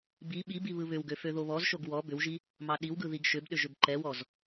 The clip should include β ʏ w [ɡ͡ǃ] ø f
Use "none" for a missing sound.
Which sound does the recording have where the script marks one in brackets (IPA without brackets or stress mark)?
ɡ